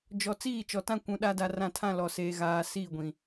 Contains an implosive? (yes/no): yes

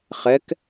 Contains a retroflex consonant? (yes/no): no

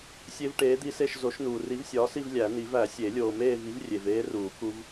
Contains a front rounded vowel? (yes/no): no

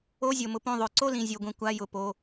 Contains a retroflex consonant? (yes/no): no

